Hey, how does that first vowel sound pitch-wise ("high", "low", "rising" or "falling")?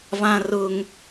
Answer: high